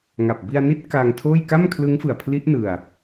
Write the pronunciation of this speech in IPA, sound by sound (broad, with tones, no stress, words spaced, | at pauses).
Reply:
ŋa˨˩p̚ bi˧a̯ni˦˥t̚ kaː˧ŋtʰoː˥˩j ka˥˩mkʰlɯ˦˥ŋ fɯ˨˩a̯pʰli˦˥ʔ nɯ˧a̯